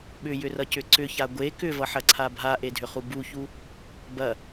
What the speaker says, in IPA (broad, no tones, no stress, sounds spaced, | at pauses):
ɓ ʏ j ʏ r ʌ c ʏ ǀ ʏ ç a ɡʷ e k ʏ v ʌ ħ ɐ ǀʰ a bʱ a ʔ e dʱ ʏ χ u b u ç u | b ɐ